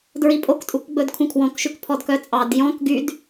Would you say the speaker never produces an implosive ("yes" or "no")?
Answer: yes